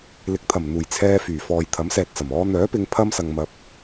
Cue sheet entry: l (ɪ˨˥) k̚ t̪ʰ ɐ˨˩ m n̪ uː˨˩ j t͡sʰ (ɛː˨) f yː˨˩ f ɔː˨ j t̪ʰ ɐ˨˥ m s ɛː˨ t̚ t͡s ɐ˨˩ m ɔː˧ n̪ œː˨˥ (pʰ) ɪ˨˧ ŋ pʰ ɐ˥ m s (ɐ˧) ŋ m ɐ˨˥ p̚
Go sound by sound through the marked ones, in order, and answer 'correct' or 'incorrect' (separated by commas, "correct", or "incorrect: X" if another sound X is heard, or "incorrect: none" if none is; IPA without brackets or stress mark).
correct, incorrect: ɛː˧, incorrect: p, incorrect: ɐ˨